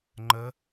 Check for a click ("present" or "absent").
present